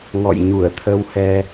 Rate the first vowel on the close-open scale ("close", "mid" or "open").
mid